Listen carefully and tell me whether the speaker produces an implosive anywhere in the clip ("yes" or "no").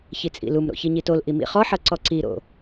no